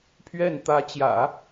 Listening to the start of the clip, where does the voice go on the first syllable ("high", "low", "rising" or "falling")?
falling